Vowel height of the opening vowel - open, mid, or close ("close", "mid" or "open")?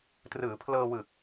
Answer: close